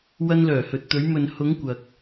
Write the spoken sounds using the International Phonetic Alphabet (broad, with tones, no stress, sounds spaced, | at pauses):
w ɐ˧ n l œː˨˩ h ɵ˨ t̚ t̪ ɵ˨˧ ɥ m ɵ˨ n h ʊ˨˧ ŋ kʷ ɐ˨ k̚